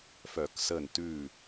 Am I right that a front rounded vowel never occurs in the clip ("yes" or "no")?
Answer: no